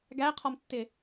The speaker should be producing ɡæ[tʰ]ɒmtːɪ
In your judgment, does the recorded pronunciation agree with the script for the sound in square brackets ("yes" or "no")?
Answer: no